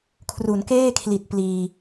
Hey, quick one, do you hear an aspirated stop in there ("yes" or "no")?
yes